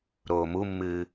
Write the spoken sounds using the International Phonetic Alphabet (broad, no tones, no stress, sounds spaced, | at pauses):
ɾ oː m u mː ɨː